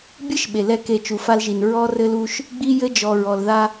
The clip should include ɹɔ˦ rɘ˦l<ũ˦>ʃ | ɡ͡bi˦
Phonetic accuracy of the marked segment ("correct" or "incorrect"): incorrect